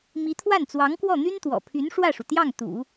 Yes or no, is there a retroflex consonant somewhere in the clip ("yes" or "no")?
yes